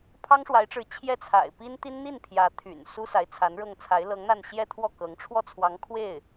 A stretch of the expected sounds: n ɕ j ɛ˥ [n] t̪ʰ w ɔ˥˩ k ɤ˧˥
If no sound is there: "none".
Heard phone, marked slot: none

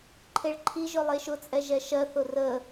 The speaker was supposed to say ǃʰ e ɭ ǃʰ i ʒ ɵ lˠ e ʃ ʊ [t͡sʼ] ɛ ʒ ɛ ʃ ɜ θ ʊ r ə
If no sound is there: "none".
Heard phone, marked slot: t͡sʼ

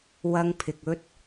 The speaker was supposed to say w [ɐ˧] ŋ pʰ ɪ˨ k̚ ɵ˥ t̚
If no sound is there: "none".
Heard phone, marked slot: ɐ˧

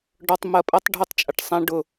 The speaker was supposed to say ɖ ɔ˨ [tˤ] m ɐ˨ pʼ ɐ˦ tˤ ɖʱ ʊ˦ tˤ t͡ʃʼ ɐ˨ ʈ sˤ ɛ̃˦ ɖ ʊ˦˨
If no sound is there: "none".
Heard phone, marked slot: tˤ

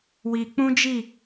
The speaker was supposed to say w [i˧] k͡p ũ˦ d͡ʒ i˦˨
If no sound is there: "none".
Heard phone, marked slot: i˧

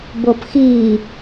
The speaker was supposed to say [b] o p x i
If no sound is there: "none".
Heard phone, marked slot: b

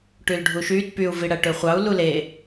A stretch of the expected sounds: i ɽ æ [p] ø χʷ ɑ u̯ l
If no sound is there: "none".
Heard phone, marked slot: ʈ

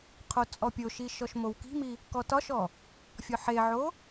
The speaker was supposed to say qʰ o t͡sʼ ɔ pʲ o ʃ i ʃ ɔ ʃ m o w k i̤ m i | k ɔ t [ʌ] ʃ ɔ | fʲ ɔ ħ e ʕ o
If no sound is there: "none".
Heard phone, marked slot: ɒ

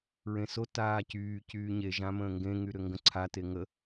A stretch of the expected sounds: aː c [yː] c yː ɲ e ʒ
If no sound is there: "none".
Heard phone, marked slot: yː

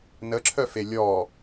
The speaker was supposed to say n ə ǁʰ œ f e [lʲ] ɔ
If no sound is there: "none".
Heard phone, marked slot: lʲ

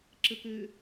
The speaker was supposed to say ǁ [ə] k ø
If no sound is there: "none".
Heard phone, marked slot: ə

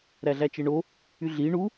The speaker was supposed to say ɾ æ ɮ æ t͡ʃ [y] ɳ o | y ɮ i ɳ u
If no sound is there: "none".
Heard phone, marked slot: e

